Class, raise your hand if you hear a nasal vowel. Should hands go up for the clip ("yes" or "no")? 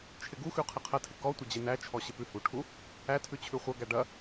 no